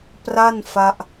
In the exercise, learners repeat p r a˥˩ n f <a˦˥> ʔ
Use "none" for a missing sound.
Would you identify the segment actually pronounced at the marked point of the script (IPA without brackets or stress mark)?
a˦˥